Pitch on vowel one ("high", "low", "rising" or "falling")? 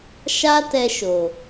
high